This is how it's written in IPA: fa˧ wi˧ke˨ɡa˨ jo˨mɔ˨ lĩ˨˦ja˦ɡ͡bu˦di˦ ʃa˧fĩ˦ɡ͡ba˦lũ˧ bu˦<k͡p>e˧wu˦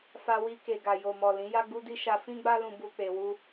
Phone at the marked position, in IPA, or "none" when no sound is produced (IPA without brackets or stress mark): k͡p